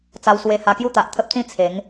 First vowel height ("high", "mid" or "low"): low